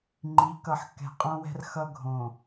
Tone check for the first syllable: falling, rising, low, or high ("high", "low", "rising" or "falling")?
rising